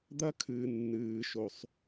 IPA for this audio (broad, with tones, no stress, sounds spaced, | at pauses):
d̪ ɐ˥ kʰ ɨː˩ nː ɨː˩ ʃ o˩ sˤ